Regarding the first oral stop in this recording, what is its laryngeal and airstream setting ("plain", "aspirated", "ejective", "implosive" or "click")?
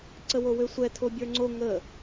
click